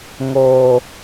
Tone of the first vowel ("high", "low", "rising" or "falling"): low